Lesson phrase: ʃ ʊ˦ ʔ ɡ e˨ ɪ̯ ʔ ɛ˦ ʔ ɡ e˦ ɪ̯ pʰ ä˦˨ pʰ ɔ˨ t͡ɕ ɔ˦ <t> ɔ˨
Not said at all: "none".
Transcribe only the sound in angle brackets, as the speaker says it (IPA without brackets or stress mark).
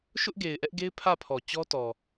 t